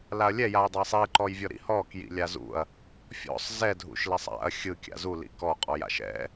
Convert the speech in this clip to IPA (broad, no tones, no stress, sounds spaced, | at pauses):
l a ɐ̯ lʲ ɛ j a j dˤ a sˤ i ǃ ɔ j vʲ ɔ ɾ ḭ h ɔ k j ḭ lʲ a z ṵ ɐ̯ | fʲ ɔ̰ sˤ z ɛ dʱ ṵ ʃ l ɛ sˤ a̰ ɐ̯ xʲ ɯ kʲ a̰ z u l ḭ k ɔ qʼ ɔ j a̰ ʃ ɛ̰